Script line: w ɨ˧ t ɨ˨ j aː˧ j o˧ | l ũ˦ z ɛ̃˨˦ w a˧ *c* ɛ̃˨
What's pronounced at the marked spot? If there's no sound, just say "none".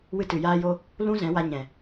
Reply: ɲ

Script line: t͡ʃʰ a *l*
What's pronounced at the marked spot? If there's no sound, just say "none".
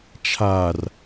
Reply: r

